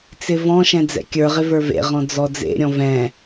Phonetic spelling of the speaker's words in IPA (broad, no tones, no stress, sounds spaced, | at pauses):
t͡s ɪ v ɔ̃ ʃ ɛ̃ d͡z ɛ̰ kʲ ə˞ ʁ ɪ v ə˞ v ḛ ʁ ɔ̃ d͡z ɔ d͡z ḛ ɾʲ ɔ̃ v ɛ̃